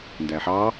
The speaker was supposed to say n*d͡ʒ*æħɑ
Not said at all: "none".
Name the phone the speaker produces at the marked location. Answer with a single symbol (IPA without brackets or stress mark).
d